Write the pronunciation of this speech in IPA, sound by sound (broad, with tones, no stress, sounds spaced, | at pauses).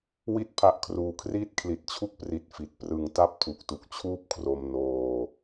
w i˥˩ t̚ pʰ a˦˥ ʔ kʰ r uː˧ kʰ r iː˥˩ t̚ kʰ l i˨˩ t̚ t͡ɕʰ u˦˥ k̚ p r i˨˩ t̚ f i˨˩ t̚ p r ɯ˨˩ ŋ t a˥˩ p̚ tʰ u˨˩ k̚ t u˨˩ k̚ t͡ɕʰ uː˥˩ p̚ kʰ r o˧ m n oː˧